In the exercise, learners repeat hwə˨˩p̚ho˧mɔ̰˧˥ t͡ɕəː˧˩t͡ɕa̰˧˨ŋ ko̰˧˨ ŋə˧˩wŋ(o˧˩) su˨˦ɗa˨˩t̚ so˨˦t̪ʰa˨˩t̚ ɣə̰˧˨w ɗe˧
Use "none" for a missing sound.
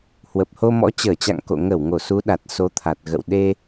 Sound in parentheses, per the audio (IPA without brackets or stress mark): o˧˩